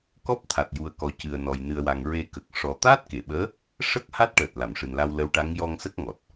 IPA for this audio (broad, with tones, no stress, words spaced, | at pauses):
kɔ˦˥p̚ t̪ʰa˨˩t̚ju˨˩ə̯kɔ˨˩ cɨ˨˩ə̯nɔ˨˩j nɨ˨˩ə̯wa˨˩ŋ ɹe˧ kə˨˩k̚ ʂɔ˨˩ t̪aː˦˥t̚ke˨˩˨ɓəː˧˥ | ʂə˦˥k̚ ha˦˥t̚ʈəː˨˩t̚ la˨˩˨mʂɨ˨˩nla˧w lə˧˥wʈa˧˥ŋ jɔ˧ŋsə˦˥k̚ŋɔ˨˩t̚